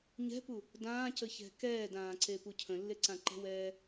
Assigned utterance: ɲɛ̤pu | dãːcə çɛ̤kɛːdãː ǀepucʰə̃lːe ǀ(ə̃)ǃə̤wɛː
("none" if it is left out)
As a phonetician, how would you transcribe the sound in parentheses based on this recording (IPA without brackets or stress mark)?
ã